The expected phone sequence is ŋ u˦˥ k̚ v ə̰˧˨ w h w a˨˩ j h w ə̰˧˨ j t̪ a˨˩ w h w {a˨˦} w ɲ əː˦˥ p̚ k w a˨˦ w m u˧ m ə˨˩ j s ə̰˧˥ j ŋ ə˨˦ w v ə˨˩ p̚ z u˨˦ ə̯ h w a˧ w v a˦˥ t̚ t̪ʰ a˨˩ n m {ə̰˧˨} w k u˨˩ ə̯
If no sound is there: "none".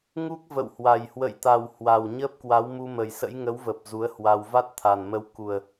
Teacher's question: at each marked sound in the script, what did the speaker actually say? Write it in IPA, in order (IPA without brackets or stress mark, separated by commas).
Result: a˨˩, ə˧